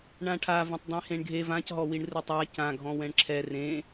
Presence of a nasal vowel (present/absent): present